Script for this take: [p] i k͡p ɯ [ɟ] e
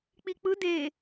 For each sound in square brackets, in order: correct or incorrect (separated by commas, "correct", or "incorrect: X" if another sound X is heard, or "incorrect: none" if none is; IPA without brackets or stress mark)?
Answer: incorrect: k͡p, incorrect: d